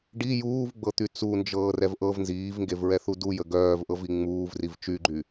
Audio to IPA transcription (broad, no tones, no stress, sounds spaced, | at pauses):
ɖ i j uː v ɡ͡b ɤ t̪ y t͡s u n d͡ʒ ɤː r ɛ v ʔ ɤ v n z iː v ŋ ɡ e v ɹ ɛ θ u d u j ə ɡ œː v ʔ ɤ v i ŋ͡m uː v r i v t͡ʃ y ɡ͡ǃ y